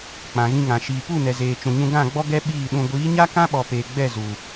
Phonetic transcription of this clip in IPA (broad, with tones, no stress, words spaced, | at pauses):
k͡pã˨ɣĩ˧ŋã˨ ʃiː˨pu˦˨ nɛ˨zeː˨ t͡ʃũ˨ɲũ˧ ɡã˦˨ɡ͡bɔ˦ ɡɛ˦ ɓiː˦˨ɗũ˧ ɡʷiː˨˦ɲa˦kã˦ɓɔ˨ peː˨ɡ͡bɛ˦˨ zu˨